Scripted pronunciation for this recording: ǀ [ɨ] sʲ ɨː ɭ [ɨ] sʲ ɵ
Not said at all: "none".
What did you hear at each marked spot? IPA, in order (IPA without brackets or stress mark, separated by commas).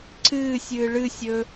ɨː, ɨ